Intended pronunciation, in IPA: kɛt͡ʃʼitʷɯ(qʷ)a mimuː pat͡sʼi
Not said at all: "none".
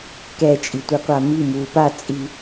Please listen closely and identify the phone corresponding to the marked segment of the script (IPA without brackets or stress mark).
qʷ